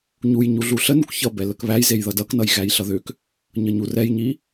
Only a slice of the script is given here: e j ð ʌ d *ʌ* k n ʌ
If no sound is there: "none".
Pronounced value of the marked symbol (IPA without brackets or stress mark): ʌ